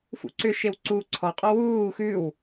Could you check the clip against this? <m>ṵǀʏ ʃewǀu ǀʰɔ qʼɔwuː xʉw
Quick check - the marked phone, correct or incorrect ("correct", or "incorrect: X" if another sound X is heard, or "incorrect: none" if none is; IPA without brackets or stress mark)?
incorrect: f